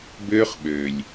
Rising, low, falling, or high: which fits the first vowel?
high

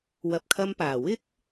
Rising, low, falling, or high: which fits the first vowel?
low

